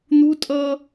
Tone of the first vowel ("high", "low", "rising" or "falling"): high